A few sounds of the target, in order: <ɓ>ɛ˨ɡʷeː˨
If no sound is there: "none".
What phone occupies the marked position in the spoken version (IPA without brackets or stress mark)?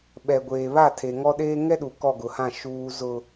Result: ɓ